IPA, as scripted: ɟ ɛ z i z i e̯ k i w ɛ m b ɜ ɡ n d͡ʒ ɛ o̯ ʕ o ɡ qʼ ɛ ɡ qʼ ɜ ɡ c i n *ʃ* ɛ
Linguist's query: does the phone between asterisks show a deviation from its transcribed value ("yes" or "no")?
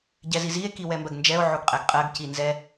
yes